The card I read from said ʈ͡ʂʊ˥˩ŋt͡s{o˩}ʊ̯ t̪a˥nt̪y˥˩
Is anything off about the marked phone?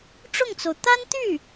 no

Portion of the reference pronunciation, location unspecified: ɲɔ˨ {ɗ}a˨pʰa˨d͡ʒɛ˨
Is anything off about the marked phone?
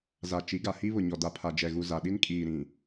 yes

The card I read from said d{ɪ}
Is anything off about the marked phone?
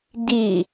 no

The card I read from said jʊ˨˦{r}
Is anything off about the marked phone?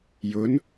yes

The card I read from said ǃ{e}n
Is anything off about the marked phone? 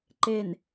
no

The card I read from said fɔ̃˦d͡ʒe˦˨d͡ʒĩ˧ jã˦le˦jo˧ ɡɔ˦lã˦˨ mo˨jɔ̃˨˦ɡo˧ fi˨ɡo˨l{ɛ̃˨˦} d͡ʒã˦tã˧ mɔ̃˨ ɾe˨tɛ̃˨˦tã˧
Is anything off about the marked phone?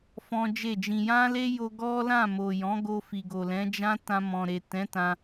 no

